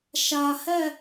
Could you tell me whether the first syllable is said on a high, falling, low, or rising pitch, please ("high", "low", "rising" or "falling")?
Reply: low